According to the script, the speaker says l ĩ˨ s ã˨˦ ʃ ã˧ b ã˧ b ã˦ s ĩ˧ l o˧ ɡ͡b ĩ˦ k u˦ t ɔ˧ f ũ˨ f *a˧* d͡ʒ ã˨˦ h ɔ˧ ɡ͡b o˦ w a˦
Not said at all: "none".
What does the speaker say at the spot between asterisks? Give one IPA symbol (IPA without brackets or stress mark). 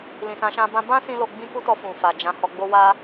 a˨